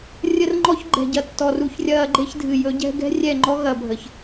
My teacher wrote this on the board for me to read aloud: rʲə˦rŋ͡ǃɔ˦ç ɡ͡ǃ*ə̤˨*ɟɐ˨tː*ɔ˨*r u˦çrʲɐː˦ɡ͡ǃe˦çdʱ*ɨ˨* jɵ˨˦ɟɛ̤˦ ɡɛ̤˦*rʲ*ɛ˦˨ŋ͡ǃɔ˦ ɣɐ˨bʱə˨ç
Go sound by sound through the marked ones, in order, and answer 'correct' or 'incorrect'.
incorrect, correct, correct, correct

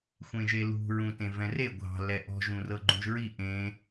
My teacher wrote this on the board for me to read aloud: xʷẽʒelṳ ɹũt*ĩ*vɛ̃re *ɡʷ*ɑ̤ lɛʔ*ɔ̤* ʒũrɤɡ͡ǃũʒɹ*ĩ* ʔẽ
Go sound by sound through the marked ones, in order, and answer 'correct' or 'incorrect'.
incorrect, correct, correct, incorrect

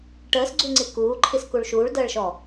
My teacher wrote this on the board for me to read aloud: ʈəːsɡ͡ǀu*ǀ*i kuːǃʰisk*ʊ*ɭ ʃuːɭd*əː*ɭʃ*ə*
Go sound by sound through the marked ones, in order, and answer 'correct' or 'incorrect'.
incorrect, incorrect, correct, incorrect

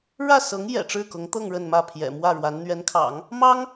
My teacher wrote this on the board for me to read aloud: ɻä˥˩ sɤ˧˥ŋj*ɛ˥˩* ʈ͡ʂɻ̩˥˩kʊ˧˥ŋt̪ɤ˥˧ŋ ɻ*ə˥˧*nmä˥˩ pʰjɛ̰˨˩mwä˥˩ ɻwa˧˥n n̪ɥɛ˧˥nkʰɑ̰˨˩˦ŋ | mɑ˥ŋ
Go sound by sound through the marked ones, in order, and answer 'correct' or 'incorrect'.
incorrect, correct

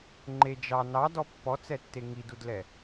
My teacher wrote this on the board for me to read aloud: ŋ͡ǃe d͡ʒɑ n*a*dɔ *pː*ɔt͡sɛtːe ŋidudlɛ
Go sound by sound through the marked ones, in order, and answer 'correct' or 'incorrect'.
incorrect, correct

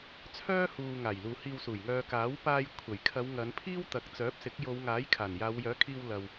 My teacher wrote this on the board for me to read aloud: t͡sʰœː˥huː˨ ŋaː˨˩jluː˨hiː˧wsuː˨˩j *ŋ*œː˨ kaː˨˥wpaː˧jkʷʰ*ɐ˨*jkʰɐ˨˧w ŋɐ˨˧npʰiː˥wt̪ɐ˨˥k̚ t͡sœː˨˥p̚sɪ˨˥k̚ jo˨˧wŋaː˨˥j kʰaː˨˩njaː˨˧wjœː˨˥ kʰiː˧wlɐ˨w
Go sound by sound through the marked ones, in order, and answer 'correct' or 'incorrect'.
correct, incorrect

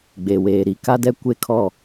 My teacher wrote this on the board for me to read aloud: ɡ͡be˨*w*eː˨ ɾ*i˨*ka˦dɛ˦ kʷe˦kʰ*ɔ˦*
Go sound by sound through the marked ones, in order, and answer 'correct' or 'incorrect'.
correct, correct, incorrect

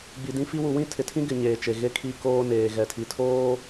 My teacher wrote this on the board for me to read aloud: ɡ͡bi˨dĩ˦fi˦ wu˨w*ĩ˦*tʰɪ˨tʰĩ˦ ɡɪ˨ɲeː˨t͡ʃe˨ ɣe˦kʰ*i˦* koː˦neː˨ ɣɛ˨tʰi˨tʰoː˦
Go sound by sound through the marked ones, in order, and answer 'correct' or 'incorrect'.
correct, correct

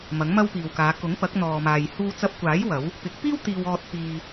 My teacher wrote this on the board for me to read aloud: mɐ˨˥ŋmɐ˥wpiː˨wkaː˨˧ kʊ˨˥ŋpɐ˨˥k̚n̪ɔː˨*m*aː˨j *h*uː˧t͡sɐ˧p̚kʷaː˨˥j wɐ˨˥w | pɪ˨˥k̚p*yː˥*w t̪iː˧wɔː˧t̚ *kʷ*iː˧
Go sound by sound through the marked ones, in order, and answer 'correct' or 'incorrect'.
correct, correct, incorrect, incorrect

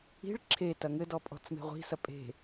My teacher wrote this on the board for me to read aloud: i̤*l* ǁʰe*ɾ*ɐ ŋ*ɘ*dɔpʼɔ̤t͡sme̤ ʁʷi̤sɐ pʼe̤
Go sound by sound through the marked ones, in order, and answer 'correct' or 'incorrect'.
incorrect, incorrect, correct

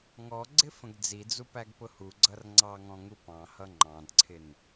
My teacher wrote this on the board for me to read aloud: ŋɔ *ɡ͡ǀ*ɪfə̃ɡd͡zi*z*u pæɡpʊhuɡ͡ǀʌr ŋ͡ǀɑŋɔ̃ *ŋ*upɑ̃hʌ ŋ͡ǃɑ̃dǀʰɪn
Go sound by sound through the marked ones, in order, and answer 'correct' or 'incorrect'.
correct, incorrect, correct

